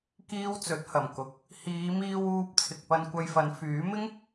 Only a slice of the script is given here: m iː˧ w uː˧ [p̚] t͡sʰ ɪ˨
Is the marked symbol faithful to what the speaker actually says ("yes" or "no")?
yes